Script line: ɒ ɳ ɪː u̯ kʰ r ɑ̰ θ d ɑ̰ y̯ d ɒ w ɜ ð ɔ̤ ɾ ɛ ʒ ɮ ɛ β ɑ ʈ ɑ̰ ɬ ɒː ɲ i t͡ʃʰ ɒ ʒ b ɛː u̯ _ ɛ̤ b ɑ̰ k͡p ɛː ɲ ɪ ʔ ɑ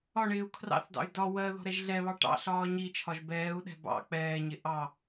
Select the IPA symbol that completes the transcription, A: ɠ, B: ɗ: B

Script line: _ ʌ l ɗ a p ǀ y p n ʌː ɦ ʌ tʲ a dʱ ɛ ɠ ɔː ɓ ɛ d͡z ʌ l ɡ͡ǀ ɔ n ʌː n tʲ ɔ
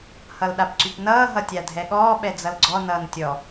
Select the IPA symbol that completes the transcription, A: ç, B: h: B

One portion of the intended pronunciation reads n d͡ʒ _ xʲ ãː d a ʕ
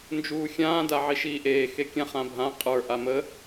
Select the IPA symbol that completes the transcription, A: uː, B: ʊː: A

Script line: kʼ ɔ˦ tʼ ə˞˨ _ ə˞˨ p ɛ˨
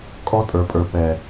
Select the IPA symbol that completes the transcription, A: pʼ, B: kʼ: A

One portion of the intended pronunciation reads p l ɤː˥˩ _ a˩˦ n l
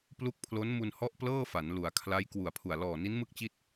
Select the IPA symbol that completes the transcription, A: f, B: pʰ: A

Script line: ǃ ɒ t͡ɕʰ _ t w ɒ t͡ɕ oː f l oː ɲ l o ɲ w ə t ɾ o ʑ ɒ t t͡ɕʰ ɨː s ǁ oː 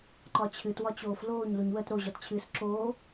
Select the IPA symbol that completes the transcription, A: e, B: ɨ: B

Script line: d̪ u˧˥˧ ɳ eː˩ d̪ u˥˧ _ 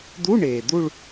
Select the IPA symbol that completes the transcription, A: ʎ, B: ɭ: B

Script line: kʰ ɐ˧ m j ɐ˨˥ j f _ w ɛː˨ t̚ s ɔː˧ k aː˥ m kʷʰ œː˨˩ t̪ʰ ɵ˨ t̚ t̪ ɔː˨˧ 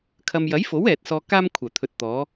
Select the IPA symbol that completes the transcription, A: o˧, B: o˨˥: B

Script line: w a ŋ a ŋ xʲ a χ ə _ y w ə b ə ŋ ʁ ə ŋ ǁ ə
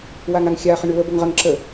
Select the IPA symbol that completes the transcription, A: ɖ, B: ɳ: B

